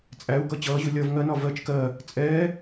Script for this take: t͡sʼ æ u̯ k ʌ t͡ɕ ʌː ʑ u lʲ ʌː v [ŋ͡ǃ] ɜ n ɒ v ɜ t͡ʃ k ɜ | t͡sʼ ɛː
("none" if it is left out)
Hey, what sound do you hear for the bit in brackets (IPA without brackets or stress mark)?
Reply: ŋ